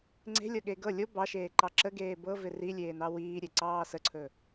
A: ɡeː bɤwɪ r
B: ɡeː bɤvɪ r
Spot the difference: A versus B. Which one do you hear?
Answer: B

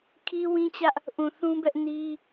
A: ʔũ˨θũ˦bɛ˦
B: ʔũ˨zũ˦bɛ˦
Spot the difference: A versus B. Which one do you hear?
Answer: A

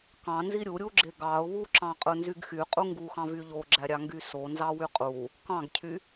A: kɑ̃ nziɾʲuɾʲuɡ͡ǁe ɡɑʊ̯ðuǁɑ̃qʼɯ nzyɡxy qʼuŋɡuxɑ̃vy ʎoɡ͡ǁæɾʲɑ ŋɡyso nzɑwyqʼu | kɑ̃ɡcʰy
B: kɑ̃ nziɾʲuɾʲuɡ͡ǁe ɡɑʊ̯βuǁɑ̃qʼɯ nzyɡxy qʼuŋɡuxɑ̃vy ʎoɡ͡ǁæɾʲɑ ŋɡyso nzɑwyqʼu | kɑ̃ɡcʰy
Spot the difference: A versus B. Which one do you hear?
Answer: B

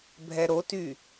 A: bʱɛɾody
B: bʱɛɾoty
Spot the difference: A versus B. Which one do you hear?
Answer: B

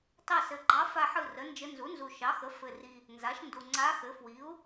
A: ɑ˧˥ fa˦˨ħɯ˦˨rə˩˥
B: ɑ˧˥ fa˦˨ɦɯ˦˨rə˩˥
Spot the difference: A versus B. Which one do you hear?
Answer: A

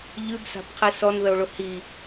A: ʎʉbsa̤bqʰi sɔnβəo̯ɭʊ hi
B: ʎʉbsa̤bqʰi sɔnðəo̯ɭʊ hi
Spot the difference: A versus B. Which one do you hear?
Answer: B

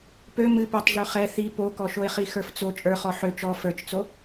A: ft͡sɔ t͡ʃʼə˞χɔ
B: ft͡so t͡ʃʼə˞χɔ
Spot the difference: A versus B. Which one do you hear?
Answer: B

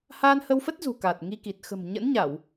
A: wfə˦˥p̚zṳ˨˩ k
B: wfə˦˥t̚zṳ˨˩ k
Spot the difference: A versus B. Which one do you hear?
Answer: B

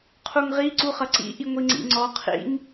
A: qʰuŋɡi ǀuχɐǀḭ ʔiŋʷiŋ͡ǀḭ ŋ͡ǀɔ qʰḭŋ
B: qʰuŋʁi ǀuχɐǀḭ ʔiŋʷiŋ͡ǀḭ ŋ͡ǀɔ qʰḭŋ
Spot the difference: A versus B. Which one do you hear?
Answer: B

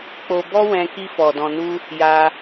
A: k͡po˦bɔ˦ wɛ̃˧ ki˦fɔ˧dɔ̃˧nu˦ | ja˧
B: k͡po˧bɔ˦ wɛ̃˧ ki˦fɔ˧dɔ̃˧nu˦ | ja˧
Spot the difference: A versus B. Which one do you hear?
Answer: B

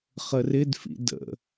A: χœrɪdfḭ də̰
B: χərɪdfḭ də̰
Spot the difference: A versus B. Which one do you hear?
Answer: B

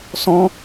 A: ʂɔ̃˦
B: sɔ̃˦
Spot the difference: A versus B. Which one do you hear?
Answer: B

